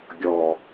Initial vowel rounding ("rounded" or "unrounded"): rounded